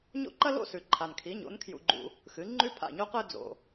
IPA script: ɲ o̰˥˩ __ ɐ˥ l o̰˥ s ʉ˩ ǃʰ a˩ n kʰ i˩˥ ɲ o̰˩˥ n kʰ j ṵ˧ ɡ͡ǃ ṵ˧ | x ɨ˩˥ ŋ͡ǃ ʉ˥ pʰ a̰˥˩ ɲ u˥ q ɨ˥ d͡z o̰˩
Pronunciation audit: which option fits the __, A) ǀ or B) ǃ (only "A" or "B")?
B